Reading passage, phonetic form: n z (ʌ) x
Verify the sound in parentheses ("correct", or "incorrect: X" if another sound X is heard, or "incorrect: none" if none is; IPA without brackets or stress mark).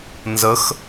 incorrect: ə